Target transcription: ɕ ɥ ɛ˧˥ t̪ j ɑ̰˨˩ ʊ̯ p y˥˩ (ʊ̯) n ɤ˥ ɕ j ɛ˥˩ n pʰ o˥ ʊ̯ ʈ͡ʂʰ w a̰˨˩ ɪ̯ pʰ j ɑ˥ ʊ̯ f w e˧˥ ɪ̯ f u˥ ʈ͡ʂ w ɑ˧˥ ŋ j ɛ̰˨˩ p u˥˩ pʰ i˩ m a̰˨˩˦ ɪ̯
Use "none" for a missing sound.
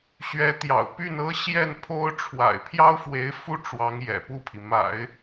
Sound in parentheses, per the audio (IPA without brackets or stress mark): none